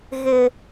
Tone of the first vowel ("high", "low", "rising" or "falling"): high